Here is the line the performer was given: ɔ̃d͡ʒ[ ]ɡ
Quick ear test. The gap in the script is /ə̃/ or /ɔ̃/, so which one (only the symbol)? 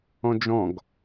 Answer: ɔ̃